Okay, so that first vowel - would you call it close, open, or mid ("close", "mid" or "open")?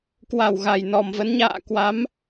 open